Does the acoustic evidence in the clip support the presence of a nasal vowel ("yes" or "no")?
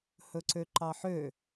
no